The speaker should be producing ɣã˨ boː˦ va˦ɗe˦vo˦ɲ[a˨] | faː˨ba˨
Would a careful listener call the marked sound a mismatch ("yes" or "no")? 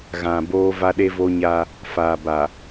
yes